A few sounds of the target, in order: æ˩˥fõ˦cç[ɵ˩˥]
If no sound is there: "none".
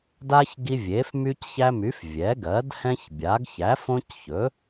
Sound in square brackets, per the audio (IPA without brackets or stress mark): ɵ˩˥